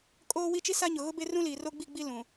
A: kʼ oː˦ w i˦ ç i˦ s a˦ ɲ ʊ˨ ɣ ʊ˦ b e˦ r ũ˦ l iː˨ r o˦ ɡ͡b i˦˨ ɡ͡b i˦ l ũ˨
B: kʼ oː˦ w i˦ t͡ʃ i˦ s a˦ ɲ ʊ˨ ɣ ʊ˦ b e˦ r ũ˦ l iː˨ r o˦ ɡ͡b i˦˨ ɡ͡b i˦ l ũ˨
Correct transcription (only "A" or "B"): B